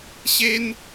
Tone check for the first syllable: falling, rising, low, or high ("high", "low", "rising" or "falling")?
high